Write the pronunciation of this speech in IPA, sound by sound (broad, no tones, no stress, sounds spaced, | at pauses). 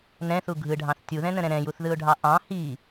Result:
n ɛ̃ θ u ɡʱ ɯ ɖʱ ɑ̃ θ tʲ u ð ɛ̃ n ə̃ ɾ ɛ̃ ɾ ɛ̃ j u θ ð ɯ ʊ̯ ɖʱ ɑ ʔ ɑ̃ h i